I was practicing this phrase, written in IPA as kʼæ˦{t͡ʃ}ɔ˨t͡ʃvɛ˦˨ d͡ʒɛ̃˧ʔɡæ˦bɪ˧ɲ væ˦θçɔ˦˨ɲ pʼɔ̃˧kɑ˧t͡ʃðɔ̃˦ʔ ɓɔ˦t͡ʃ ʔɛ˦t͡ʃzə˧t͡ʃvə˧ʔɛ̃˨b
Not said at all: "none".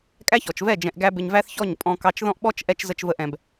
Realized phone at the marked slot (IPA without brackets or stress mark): ç